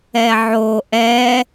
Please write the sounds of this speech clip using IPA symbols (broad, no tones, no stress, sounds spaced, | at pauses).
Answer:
ɛ ʕ o ʔ ɛ